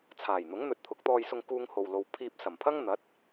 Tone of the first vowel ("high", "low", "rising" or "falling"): low